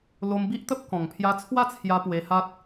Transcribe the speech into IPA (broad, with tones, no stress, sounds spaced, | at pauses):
l o˧ m b i˦ ʔ t̪ ə˦ p̚ k ɔ̃˨˩ ŋ pʰ j a˧ t͡sʰ w a˥˧ t͡sʰ j a˧ p w e˧ h a˦ t̚